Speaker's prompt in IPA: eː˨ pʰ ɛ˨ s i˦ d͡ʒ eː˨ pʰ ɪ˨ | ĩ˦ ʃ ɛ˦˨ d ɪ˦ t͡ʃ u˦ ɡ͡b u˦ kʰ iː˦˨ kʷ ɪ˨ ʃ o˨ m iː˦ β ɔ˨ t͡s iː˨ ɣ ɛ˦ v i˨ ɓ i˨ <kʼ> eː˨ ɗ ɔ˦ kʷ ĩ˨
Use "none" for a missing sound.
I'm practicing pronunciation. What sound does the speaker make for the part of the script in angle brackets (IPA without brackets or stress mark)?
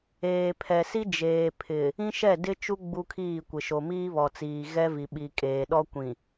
kʼ